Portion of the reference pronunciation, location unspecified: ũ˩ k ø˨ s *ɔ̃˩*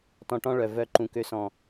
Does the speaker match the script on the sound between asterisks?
yes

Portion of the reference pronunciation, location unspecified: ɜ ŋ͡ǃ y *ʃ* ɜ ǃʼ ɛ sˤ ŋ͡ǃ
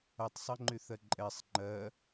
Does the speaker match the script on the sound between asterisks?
no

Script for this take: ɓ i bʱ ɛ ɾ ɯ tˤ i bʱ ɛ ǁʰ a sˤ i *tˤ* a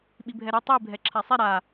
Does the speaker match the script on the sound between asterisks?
no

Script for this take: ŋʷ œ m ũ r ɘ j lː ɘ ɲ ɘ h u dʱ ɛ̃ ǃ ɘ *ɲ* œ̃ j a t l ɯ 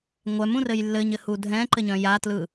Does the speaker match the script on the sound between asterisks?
yes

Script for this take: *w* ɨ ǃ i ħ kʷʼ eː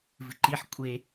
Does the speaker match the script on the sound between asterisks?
no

